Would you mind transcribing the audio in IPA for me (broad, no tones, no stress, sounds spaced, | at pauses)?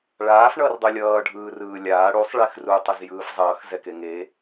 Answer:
ɭ aː f ɳ ʌː r dˤ o lʲ ʌː ɖʱ ɯː r ɯː lʲ aː ɽ u sˤ ɭ e x r u tˤ ʌ z j ɯː f zˤ ʌː x z ɛ k e ŋ e